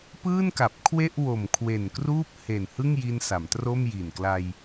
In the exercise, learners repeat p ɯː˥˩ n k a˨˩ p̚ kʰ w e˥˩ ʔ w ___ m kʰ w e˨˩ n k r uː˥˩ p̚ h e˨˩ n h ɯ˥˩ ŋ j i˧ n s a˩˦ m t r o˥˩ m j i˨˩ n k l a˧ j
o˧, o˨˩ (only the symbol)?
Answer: o˨˩